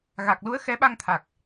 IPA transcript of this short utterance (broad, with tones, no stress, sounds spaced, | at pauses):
ɣ a˨˩ k̚ l u˨˦ ə̯ x ɛ˨˦ ɓ a˧ ŋ t̪ʰ a˨˩ k̚